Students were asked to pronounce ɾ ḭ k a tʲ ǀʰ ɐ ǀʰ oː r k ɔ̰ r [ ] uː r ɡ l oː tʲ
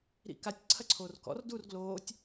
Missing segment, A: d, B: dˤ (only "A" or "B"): A